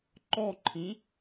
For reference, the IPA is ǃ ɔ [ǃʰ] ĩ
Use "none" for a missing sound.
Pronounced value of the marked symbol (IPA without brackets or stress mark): ǃʰ